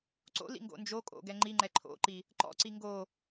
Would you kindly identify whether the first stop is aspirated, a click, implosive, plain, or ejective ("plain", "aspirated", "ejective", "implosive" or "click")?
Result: click